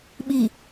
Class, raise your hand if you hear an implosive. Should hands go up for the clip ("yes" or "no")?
yes